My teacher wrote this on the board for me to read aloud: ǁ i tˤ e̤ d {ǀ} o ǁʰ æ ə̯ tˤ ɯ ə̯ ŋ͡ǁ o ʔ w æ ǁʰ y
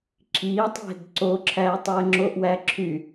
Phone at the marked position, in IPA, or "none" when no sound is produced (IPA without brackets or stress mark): ǀ